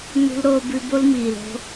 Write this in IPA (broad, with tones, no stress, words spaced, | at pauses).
nṳ˦lɾoː˦bʉ˦ bo˦lmiː˨lo̤˦